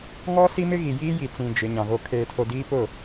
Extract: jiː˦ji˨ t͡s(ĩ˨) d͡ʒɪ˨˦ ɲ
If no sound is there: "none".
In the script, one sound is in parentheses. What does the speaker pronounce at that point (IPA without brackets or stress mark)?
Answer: ĩ˨